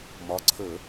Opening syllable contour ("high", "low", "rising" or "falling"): rising